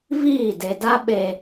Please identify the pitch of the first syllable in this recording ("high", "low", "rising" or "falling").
falling